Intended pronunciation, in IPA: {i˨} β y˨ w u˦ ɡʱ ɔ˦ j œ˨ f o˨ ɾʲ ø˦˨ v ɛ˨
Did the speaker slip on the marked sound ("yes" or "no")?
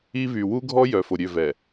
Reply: yes